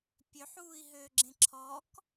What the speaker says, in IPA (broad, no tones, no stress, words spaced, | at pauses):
pʲøħuːi̯ɦøːɡ͡ǁẽ ǁʰɔk